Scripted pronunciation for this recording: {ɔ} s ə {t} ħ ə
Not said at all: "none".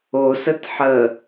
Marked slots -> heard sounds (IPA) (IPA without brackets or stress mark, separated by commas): o, t